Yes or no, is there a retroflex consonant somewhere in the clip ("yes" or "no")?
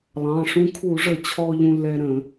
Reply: yes